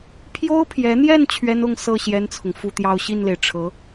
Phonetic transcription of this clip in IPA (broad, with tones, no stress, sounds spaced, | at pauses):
pʰ j o˥ ʊ̯ pʰ j ɛ˧˥ n̪ j ɛ˥˩ n t͡ɕʰ ɥ ɛ˥ n ʊ˥˧ ŋ s ɤ˥˩ ɕ j ɛ˥ n t͡sʰ ʊ˨ ŋ f u˥˧ t̪ j ɑ˥˧ ʊ̯ ɕ i˥˩ n l e˩ ɪ̯ ʈ͡ʂʰ ɤ˧˥